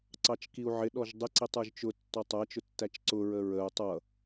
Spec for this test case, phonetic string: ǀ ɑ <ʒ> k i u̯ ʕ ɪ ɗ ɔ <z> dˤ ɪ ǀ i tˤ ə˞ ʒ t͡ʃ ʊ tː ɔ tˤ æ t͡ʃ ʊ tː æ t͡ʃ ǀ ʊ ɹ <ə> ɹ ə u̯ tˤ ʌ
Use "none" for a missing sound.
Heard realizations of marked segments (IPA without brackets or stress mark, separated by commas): t͡ʃ, ʒ, ə